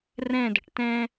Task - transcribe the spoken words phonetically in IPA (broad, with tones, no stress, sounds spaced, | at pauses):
r ɛ̃˥˧ d ə̤˧ ʈ t ɛ̃˥